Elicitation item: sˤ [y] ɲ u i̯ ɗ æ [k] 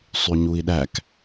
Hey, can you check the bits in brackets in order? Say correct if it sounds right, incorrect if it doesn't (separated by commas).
correct, correct